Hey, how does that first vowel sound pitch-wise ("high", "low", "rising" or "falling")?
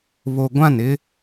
low